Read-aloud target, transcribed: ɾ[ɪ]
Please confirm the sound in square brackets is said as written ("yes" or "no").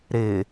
yes